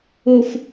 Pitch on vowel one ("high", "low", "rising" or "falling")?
low